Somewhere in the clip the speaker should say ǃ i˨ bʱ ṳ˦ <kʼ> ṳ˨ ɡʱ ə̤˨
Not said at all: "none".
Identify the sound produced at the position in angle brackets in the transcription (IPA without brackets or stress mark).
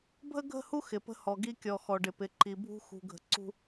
x